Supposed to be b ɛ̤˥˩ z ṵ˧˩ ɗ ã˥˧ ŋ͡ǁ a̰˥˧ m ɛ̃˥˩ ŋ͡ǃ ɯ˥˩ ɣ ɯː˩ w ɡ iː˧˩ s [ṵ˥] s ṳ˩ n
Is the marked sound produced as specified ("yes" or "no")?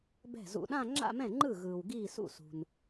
no